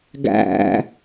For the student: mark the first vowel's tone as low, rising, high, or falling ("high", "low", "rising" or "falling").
low